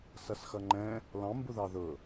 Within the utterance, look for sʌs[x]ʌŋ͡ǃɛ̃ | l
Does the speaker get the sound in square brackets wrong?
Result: no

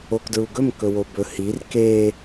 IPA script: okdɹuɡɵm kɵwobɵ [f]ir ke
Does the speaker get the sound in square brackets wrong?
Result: yes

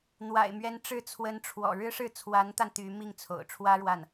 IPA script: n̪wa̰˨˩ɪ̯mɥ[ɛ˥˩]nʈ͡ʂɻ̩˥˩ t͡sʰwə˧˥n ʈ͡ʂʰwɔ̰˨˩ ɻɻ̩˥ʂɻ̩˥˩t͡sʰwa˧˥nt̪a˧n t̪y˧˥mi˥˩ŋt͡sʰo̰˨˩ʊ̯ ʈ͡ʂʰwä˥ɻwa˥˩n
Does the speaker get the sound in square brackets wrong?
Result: yes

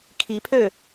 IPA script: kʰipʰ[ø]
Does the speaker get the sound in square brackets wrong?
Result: no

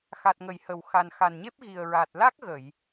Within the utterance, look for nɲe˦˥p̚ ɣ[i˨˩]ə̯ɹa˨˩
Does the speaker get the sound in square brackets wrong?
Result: no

